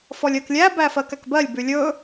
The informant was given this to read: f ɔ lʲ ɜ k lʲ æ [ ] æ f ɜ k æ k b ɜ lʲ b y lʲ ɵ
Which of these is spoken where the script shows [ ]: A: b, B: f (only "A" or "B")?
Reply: A